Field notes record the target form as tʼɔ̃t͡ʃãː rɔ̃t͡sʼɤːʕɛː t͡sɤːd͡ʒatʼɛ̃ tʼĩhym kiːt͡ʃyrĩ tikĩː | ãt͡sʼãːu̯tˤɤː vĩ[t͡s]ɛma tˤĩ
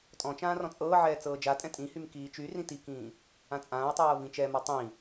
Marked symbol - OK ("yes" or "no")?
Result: no